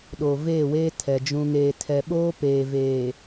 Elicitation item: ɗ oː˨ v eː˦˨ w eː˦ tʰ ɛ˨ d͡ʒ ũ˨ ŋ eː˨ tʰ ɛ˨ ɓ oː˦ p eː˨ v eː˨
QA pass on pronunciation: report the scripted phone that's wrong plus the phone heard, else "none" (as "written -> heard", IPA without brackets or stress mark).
none